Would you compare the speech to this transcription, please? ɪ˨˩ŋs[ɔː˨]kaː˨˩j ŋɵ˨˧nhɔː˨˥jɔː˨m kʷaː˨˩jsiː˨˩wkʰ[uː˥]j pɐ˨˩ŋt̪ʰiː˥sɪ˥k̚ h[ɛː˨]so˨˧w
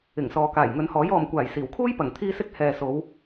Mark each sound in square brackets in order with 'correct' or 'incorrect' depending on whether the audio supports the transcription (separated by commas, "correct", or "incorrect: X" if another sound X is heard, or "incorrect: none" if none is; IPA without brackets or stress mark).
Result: correct, correct, correct